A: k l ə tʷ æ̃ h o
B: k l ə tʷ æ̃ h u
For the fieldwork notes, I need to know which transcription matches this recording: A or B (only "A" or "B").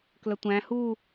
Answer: B